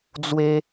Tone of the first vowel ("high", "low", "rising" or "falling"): high